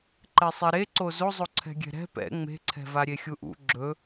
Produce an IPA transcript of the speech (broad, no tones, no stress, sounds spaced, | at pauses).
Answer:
ǃ ɛ sˤ ɛ ɾ e ǀ o z o zˤ o ǀʰ ɛ̤ ɡʲ ɛ̤ ɾ ɛ̤ p ɛ̰ ŋ͡m e̤ ǀʰ ɛ̤ v a ɾʲ e xʲ u ʔ ṵ ɡ͡ǁ ɵ